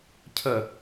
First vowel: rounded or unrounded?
unrounded